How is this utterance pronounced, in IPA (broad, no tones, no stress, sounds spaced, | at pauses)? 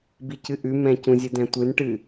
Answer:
b i c ɨ ʔ ʉ m ɛ̃ c ũ zʲ ɨ d ɛ̃ tʷ ɨ n ʈ ɨ